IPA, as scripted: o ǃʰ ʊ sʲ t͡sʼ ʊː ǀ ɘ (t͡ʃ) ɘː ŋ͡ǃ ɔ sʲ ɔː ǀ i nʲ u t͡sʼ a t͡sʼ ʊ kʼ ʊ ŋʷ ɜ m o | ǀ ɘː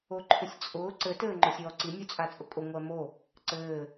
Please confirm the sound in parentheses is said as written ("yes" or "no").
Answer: no